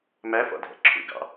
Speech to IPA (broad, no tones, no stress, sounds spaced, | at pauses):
m æ f ɔ̰ dʱ ɛ̰ ǁʰ ṵ ɡ ɑ̰